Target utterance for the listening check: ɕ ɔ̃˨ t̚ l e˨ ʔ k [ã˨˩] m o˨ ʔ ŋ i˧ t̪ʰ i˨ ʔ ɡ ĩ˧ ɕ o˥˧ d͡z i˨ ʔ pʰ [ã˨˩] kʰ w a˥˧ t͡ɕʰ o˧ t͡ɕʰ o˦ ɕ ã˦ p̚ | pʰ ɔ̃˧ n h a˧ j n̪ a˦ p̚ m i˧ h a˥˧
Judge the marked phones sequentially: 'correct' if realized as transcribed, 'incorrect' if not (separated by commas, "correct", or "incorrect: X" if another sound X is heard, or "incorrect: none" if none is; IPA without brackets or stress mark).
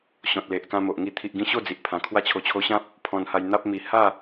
incorrect: ã˧, correct